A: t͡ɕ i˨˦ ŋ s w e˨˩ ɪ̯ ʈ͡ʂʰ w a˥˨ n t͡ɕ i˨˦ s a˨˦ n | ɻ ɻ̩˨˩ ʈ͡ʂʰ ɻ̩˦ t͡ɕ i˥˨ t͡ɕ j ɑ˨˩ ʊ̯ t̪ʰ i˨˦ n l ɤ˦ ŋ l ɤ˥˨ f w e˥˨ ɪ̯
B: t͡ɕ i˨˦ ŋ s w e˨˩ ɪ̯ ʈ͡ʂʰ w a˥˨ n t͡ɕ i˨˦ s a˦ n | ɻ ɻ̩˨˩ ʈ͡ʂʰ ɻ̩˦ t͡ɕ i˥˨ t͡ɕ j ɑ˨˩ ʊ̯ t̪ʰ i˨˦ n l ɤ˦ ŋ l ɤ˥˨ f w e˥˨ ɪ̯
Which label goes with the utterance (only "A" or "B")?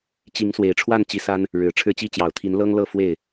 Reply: B